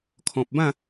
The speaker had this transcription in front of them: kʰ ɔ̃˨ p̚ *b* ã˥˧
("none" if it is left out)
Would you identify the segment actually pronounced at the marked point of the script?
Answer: b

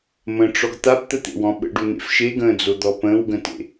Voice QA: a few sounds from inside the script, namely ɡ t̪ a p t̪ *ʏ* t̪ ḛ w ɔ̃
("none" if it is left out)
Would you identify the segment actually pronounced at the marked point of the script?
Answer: ə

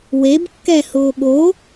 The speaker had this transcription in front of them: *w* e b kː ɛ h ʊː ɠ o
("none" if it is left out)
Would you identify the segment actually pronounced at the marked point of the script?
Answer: w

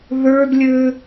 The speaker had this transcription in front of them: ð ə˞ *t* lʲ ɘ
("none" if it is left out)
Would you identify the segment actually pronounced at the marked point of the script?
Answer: d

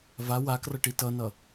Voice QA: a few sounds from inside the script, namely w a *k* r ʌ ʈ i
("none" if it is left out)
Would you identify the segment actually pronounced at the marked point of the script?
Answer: k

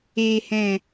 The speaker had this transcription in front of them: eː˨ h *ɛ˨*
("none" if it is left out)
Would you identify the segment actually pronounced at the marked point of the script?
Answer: ɛ̃˨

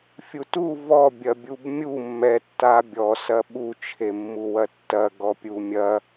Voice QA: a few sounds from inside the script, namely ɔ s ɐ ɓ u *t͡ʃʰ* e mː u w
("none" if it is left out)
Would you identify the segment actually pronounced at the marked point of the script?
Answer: t͡ʃʰ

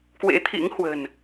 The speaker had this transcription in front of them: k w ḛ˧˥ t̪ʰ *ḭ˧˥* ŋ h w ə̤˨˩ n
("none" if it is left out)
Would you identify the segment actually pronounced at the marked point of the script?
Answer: ḭ˧˥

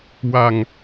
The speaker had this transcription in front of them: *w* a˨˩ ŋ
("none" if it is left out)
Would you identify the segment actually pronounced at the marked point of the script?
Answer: w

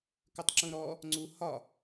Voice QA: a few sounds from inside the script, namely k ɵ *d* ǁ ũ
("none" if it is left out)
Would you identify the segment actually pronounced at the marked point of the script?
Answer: tˤ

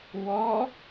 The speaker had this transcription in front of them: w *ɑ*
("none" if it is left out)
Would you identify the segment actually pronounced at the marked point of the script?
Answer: ɔ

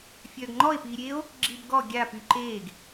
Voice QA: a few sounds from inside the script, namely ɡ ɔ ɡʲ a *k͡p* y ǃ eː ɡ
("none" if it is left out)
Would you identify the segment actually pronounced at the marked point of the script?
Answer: p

